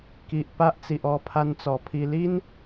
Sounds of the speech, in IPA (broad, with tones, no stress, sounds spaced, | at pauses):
k i˨ ʔ p a˦ ʔ t͡s i˨ ʔ ɔ˧ pʰ a˧ n t͡s ɔ˨˩ pʰ i˧ l i˦ n